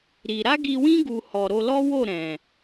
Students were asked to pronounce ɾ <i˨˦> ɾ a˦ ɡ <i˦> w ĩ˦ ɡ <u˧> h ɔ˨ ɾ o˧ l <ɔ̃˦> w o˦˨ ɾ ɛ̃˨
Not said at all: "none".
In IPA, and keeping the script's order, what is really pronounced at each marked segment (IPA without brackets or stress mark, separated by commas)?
i˧, i˧, u˧, ɔ˦